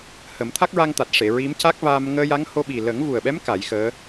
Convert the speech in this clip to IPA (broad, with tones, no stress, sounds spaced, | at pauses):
h ə˨˩˦ m t̪ʰ a˦˥ k̚ ɹ a˧ ŋ t̪ a˨˩ t̚ ʂ e˨˩˨ ɹ i˧˥ m c a˦˥ k̚ v aː˧ m ŋ əː˧ j a˧˥ ŋ h o˧ ɓ i˨˩ l ə˨˩˦ ŋ v u˨˩ ə̯ ɓ ɛ˧˥ m k a˨˩˦ j x əː˧˥